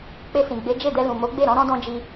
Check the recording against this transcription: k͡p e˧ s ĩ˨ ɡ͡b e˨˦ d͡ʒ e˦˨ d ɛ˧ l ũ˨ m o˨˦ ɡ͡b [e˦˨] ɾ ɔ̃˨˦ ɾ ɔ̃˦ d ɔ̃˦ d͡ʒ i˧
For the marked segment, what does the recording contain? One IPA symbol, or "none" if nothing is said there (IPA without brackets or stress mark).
e˦˨